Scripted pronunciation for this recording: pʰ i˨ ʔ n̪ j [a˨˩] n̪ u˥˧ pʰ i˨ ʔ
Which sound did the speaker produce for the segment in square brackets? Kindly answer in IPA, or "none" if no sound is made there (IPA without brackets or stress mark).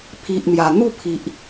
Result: a˨˩